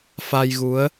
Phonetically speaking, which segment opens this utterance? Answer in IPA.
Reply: f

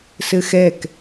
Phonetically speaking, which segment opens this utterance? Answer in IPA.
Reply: s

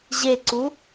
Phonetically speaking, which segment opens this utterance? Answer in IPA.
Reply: ʑ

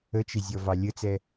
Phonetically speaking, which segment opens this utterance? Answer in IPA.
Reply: ə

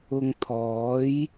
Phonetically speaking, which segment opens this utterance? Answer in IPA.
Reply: ʊ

